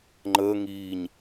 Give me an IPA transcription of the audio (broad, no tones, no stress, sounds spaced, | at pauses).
ŋ͡ǃ əː ŋ iː ɲ